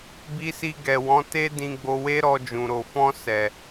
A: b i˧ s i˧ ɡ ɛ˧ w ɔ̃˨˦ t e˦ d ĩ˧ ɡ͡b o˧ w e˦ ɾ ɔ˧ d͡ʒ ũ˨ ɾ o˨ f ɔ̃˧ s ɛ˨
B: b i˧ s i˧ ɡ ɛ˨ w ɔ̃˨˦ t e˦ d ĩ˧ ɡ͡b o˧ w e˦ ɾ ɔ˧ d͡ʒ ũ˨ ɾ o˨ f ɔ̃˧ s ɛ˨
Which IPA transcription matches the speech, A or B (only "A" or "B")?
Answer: B